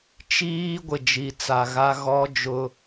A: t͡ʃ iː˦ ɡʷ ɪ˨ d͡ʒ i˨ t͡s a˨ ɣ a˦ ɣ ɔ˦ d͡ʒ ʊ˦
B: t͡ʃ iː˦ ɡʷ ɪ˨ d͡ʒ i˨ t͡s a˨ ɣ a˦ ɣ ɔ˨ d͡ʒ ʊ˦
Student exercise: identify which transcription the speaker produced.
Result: A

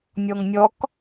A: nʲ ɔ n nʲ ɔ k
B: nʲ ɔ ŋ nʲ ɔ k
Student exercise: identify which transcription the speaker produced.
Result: B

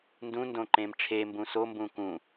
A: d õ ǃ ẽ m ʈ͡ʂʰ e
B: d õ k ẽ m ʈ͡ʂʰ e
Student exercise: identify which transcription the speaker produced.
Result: A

